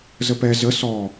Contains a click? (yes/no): no